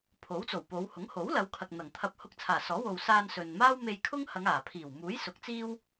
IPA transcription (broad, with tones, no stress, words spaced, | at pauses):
pʰo˨˥wt͡so˨˩wpo˨˧w hʊ˨˥ŋho˨˥wlɐ˨˧wkʰɐ˨k̚ n̪ɐ˨˩ŋt̪ʰɐ˧p̚ hʊ˧k̚t͡sʰaː˨˩sɔː˨˥ wo˨wsaː˧n sɵ˨n maː˥wme˧jkʰʊ˥ŋhɐ˨˧ŋ aː˨˩pʰiː˨˩w muː˨˥j sʊ˨˥k̚t͡siː˥w